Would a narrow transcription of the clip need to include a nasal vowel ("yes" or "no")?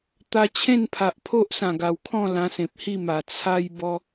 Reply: yes